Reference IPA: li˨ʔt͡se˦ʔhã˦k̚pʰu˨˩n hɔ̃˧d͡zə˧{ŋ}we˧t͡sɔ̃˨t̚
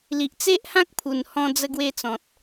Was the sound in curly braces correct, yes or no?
no